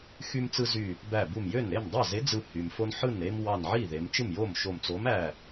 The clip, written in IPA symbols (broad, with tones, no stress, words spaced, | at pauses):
xy˦mt͡sɯ˦zy˧˩ | bæ˧˩bu˧˩mjø˥˩n ɾe˥˩mdˤɑ˥˩ze˨˥ d͡zɯ˧˩hy˩mfo˦n ħɯ˥˩nɾe˦m wɑ˧˩nʕi˥˩ ðe˩˧mt͡ʃɯ˥˩mjo˥˩mʃo˧˩m t͡so˨˥mæ˧˩